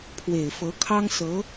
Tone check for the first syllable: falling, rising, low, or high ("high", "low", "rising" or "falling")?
low